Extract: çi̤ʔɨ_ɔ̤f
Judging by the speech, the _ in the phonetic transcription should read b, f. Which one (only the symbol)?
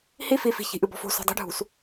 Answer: b